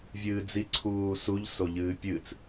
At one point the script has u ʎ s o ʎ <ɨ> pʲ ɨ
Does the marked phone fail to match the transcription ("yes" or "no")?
yes